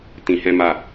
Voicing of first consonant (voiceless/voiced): voiceless